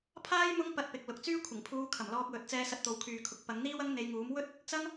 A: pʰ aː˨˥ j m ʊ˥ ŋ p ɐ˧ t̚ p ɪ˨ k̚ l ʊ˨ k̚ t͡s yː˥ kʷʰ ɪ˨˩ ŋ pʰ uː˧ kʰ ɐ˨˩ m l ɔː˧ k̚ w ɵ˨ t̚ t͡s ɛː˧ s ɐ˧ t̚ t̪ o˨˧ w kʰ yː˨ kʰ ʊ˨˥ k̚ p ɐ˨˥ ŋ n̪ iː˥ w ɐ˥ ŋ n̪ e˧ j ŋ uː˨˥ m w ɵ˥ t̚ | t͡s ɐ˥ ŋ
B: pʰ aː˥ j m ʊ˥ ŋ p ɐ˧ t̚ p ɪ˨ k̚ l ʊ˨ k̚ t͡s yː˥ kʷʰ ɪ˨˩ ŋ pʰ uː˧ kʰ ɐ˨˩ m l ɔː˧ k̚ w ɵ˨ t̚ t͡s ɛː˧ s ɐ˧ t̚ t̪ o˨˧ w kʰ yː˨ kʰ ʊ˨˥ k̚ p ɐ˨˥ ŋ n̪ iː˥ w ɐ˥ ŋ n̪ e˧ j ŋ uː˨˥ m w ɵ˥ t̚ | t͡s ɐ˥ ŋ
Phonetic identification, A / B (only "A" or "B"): B